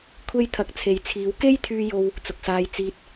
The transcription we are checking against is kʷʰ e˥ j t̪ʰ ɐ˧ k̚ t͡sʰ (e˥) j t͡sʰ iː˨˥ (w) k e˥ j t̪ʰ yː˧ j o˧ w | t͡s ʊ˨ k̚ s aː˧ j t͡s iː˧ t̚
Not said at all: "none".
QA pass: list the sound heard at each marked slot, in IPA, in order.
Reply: e˨˧, w

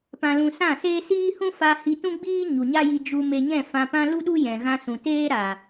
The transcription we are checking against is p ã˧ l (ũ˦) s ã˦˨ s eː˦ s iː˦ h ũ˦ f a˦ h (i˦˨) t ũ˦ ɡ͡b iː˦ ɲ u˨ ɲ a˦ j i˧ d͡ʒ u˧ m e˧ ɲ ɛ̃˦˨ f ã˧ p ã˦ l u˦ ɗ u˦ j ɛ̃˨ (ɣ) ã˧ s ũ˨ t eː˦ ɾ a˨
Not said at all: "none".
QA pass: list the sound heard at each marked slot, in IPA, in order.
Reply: ũ˧, i˧, ɣ

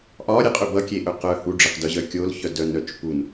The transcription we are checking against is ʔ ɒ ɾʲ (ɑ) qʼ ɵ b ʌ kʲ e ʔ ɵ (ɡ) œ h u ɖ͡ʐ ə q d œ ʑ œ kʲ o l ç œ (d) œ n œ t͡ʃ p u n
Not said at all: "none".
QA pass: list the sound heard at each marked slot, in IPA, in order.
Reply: ə, q, d

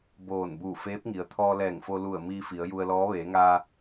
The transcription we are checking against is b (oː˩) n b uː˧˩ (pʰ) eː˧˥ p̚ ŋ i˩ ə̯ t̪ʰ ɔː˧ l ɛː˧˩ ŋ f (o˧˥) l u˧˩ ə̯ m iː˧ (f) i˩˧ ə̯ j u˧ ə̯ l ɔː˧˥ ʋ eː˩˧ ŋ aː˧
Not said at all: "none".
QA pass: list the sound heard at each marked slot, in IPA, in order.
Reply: oː˧˩, f, o˧, f

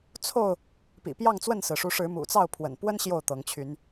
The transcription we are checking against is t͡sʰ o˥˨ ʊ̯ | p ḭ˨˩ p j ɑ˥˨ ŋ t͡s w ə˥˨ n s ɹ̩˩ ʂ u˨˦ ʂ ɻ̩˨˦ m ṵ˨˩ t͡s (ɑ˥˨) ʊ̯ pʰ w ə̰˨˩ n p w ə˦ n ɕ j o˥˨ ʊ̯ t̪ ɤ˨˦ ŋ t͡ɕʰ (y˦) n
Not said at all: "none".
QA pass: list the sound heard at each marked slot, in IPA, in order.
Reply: ɑ˥˨, y˨˦

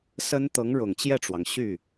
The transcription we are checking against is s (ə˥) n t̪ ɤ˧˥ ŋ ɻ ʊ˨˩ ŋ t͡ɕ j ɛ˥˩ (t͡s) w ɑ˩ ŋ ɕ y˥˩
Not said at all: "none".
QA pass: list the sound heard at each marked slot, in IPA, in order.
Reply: ə˥, ʈ͡ʂ

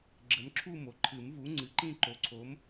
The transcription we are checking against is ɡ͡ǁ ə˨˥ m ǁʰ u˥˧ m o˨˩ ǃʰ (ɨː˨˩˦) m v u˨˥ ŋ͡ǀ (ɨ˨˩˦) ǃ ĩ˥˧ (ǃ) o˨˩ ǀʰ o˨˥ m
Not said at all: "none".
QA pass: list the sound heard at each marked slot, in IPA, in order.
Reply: ɨ˨˩˦, ɨ˨˥, ǃ

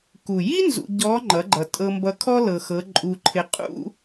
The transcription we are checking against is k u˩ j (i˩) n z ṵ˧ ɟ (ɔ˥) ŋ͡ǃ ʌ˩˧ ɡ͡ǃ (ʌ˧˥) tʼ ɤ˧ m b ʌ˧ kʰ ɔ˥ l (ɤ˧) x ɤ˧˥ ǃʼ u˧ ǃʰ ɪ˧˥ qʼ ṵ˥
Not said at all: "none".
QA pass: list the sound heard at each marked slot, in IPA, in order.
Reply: i˥, ɔ˧˥, ʌ˩, ɤ˧

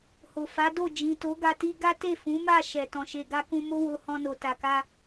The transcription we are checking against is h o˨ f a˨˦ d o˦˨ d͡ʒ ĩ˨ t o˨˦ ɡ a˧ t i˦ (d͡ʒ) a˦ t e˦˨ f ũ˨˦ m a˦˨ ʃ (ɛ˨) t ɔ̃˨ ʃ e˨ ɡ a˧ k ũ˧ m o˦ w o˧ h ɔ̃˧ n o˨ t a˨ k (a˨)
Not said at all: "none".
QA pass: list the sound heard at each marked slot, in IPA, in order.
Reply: ɡ, ɛ˨, a˧

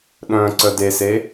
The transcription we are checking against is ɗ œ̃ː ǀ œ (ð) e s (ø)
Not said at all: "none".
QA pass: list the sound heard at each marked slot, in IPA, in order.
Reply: d, e

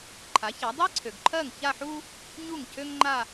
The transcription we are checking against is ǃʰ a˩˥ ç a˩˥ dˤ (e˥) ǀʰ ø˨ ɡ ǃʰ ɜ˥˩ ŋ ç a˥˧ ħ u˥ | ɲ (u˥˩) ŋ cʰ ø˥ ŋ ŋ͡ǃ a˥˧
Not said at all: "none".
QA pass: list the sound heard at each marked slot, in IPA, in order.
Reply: e˥, u˥˩

